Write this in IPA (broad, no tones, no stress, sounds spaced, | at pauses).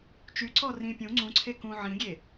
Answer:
t͡ʃ y ǀ ɔ r ĩ pʲ ũ ŋ͡ǀ ũ ǀʰ e k ũ ʕ ĩ ɡʲ e